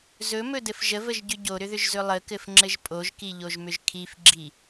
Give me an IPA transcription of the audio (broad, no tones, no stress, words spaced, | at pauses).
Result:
zɵmɵdɘf ʒəvəʒɟʏ ɟoɾʏðʏʒzɵ lˠəkɘfŋ͡ǁɘʒ pʼoʒkiʎoʒmʏʒ kʰifɡ͡ǁi